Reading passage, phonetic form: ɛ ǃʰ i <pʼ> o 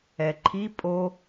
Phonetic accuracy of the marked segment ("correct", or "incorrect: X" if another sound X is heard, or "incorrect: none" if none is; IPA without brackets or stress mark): correct